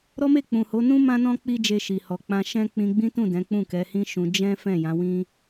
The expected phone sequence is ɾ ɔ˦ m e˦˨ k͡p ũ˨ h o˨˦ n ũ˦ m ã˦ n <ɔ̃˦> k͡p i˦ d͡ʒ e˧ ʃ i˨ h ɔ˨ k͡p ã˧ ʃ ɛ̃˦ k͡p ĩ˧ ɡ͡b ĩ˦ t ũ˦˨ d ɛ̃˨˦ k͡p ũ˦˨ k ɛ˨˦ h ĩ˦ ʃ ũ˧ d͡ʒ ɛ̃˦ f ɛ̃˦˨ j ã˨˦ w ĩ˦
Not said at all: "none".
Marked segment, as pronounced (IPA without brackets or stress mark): ɔ̃˦